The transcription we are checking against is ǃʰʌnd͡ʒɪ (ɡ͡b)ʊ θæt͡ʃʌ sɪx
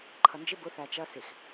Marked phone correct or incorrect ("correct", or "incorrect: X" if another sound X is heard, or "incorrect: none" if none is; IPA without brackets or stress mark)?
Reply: incorrect: b